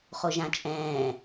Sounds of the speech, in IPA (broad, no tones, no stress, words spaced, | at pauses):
χoʒãt͡ʃʼɛ̃ː